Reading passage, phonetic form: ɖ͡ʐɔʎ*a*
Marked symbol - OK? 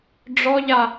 yes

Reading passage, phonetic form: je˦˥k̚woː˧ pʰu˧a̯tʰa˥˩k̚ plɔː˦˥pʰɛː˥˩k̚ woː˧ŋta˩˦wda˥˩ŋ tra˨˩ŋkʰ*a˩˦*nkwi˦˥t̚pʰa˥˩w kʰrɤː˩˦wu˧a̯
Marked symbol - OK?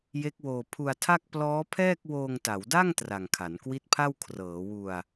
yes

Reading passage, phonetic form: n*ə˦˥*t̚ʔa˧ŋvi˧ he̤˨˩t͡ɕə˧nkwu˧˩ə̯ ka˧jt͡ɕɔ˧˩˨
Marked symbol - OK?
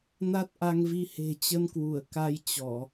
no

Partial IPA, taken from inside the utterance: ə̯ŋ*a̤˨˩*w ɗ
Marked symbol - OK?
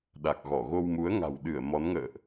yes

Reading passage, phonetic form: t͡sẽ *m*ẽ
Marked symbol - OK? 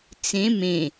yes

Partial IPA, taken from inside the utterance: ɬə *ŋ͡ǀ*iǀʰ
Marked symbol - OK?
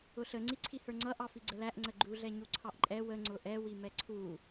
yes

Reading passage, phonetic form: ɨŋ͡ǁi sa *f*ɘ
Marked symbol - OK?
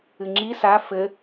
yes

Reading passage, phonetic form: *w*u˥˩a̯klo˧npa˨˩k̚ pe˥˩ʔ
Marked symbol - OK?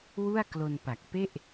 yes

